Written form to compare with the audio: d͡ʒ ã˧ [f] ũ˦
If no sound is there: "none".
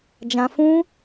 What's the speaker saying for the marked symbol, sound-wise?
f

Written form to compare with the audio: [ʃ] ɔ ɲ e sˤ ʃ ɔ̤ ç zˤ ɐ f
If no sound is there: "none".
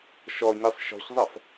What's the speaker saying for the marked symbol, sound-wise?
ʃ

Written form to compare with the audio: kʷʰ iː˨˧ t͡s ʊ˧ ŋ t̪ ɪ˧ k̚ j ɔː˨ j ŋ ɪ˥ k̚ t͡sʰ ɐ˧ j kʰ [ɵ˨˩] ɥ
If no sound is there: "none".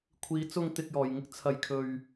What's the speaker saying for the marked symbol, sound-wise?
ɵ˧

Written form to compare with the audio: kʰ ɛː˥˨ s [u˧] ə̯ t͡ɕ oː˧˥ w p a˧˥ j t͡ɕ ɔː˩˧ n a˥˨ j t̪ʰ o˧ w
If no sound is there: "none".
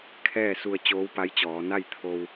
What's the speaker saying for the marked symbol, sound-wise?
u˧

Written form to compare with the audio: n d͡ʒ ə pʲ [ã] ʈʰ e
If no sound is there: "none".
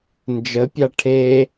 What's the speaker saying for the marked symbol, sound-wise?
a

